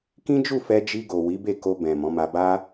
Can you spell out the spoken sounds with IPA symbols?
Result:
kĩ˦d͡ʒu˦˨fɛ˧ d͡ʒi˧ɡo˨ wi˨˦be˦˨ko˧ bɛ̃˨ mɔ̃˨˦ma˧ba˦

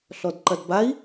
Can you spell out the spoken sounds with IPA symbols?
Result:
ɬɔdǃɐdbai̯

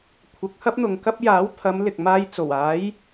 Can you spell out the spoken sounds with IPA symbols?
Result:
kʷʰɐ˨˥k̚hɐ˥p̚n̪ʊ˨ŋkɐ˥p̚ jaː˨˥wt̪ʰɐ˨˧m lɪ˨k̚ maː˧j t͡so˨˩waː˨˥j

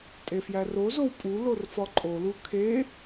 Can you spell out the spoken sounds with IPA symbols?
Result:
tʼefjærozow pʼu lorfɒǃʼolu kʰe

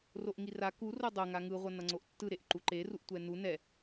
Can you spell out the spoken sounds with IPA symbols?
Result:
roʔŋira ku rodˤo ŋaŋɯ ʁʷʌnʌŋ͡ǀoʔtːɯ ɾeʔǃuǃe ruʔtʷɛnu nɛ

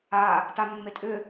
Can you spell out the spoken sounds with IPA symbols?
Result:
a | tamːetʼʏ

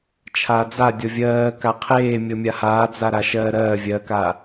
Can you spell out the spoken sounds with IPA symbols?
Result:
t͡ʃʰad͡za dʲɔvʲɜː kaqʰeː mʲɤmʲahaːd͡za ɾaʃɜːɾɜː vʲɜka

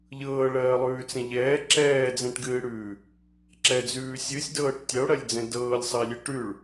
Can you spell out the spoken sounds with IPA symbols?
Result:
ʎɤːɭɜːlˠʉːt͡sɛ̃ ʎɛː ǁɛːd͡zɛ̃ʈɡɨːɽʉː | ǁɛd͡zʉː sʲɨsʲdɤːʈ tʲəo̯ɽɜlʲd͡zɛ̃ dɤːlʲsˤəe̯lʲɨ ʈʉɭ

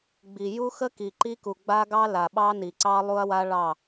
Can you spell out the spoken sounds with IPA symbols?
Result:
ɡ͡bi˨ ju˦xə˦ki˨ ǃi˦ku˨ɡ͡ba˦ɡɑ˦ la˨ɓɑ˦ni˨ǀɑ˦ lˠu˦ɐ̯wa˦ ɭɑ˦˨

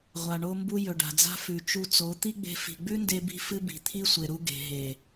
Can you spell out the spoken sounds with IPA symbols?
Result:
ʁʷa˨ɳo˧mbu˧ jɵ˨ɖa̤˨d͡za̤˦ fʉ˨t͡ʃu˧t͡so˨˦ t̪i˦ɡ͡be̤˧ fi̤˨ɡ͡bʉ˦nde˧bi̤˧ fɨ˧ bi̤˨t̪ʰi˦sʷe˨ɾu˧ ɡe̤˨ɦe˨

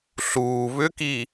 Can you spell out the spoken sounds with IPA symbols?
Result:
ɬuː βʏki

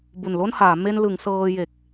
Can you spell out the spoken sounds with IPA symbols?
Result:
bu˨˩nlo˥˩nhaː˩˦ me˧nlɯ˩˦ŋ sɤː˧je˨˩k̚

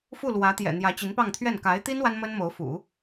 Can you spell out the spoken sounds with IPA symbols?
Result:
fu˥˩lwä˧˥t̪jɛ̰˨˩ n̪jä˧˥t͡ɕi˧˥npɑ˥˧ŋt̪ʰɥɛ˥˩n ka˧˥ɪ̯t̪i˥n wa˥nmə˥nmo˧˥ʊ̯fṵ˨˩˦

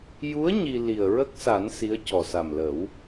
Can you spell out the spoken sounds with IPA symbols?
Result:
ju˧˥ə̯ ɲi˧ li˨˩ə̯ ɹə˦˥k̚sa˨˩˦n si˧˥ə̯cɔ˨˩ sa˨˩mlə˨˩˦w

